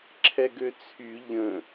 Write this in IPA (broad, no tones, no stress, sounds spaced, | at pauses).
ǁʰ ɛ ɡ ø t͡sʰ y ʎ ə̃